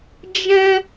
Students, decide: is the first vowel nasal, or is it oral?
nasal